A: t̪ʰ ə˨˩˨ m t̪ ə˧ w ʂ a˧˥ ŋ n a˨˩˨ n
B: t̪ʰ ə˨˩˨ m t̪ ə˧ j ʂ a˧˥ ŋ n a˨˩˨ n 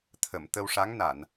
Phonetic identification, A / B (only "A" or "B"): A